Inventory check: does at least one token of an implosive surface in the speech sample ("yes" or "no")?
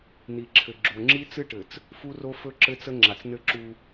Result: no